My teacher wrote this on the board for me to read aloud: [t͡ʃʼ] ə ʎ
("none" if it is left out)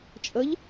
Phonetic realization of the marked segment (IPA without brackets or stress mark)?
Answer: t͡ʃʼ